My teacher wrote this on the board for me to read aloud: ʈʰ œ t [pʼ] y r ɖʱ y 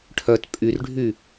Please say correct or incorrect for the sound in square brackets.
correct